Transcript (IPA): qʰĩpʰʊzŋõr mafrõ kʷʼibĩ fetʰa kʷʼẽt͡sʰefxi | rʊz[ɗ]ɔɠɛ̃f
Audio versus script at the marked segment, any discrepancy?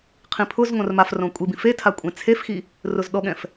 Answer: no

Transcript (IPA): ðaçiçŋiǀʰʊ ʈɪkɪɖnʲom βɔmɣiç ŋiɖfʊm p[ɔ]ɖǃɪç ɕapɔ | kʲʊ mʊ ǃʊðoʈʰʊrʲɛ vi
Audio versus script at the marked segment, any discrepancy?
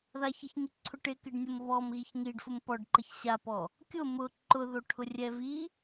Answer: no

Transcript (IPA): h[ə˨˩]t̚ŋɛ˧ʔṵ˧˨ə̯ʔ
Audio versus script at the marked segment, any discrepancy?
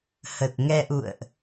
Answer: no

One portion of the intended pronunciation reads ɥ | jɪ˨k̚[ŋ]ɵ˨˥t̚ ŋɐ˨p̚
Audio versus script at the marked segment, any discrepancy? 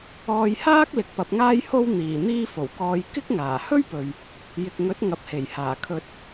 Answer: no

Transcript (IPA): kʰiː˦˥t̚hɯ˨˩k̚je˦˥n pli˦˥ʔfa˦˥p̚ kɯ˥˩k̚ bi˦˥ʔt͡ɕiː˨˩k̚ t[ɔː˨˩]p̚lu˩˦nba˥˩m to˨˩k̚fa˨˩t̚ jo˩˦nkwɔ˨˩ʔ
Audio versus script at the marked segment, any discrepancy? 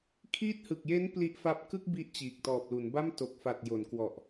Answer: no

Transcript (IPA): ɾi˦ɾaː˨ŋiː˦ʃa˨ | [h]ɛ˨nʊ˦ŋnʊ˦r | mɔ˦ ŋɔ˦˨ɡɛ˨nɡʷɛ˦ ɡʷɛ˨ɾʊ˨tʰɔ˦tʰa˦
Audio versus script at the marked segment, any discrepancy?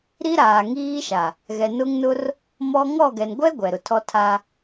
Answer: yes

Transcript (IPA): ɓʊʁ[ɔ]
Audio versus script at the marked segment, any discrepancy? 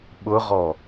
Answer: no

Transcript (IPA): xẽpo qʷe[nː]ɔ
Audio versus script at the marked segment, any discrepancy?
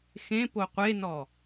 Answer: yes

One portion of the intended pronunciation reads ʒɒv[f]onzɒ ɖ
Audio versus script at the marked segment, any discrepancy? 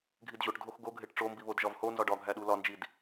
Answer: yes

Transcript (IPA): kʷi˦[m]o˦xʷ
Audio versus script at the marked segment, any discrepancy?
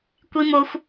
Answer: no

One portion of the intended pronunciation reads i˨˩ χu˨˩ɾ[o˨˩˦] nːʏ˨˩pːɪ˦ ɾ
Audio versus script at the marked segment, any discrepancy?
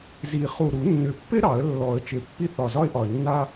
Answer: yes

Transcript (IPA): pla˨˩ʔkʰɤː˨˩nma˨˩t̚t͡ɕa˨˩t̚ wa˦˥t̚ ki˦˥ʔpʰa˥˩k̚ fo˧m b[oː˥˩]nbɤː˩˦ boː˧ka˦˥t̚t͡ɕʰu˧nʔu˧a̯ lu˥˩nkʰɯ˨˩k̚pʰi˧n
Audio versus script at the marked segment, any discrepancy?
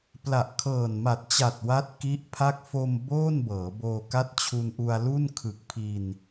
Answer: no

